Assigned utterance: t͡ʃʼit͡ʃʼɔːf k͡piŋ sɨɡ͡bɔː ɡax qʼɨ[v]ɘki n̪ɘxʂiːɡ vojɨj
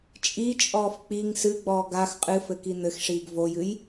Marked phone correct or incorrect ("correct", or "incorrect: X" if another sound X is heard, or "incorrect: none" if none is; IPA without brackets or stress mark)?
incorrect: f